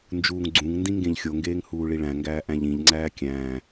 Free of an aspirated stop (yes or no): yes